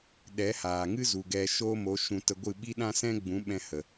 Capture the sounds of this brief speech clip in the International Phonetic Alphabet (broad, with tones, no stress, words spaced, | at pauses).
ɗɛ˨˦haː˨ŋɨ˦zu˨ ɡɛ˧ʃo˦mo˨˦ ʃũ˧tə˧ ɡʷɨ˦˨ɓi˦ ɗã˦sɛ̃˦ ɡ͡bũ˨˦ɓɛ̃˧ hə˨